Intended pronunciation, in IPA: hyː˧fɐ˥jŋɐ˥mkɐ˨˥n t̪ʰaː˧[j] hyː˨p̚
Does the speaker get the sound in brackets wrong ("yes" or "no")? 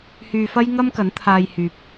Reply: no